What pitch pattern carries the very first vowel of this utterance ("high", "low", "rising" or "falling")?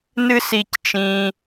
high